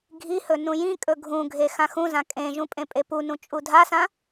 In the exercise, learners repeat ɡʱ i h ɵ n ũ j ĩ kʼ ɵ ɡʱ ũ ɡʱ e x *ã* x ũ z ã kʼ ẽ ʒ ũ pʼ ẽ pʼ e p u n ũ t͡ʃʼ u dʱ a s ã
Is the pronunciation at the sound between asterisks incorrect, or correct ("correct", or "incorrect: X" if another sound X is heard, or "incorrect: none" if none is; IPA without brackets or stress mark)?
correct